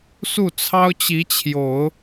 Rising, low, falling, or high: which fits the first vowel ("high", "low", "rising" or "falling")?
falling